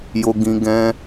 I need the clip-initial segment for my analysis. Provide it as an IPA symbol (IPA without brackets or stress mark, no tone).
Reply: j